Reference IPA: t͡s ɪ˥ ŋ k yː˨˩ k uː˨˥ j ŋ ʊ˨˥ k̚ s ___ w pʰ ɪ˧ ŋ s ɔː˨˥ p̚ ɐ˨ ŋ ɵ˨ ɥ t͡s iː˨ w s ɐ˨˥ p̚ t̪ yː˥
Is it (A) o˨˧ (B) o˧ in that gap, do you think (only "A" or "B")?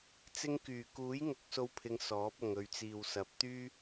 B